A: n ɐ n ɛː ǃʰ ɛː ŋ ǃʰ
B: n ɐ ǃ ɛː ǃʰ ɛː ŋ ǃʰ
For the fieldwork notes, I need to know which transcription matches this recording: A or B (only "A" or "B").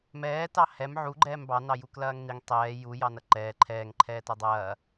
B